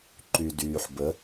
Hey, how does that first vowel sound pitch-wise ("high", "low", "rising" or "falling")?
low